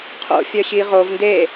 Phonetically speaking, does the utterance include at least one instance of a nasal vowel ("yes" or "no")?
no